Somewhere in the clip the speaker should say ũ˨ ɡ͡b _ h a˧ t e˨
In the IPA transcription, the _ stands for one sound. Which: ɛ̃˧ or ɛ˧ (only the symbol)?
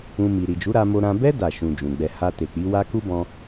ɛ˧